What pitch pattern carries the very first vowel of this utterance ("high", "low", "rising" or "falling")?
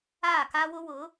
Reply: falling